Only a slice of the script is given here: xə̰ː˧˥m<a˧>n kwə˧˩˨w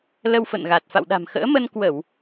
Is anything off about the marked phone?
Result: yes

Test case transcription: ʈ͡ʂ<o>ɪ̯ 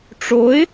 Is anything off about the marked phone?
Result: no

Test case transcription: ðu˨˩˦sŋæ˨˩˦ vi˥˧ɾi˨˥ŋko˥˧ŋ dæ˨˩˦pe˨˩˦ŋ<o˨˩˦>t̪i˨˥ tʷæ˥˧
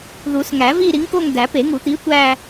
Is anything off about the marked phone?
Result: yes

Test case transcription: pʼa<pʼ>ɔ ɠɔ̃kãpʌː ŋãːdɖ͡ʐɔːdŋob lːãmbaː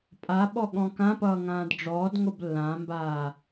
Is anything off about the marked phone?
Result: yes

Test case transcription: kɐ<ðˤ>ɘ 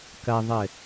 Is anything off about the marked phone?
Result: no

